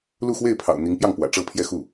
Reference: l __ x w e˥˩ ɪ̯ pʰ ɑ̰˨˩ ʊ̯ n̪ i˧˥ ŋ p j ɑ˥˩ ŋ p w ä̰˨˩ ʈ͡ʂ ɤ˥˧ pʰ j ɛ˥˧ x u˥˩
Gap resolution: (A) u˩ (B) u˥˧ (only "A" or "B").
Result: B